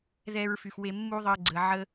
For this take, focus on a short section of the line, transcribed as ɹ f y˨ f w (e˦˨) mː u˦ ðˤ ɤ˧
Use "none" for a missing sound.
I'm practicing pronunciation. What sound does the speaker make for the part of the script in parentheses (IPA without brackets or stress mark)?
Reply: e˧